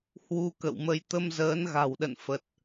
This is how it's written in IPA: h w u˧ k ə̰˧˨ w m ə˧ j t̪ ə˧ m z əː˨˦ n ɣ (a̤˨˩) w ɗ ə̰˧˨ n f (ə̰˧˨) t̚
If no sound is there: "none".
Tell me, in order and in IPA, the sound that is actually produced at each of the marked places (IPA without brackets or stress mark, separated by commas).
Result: a̤˨˩, ə˨˩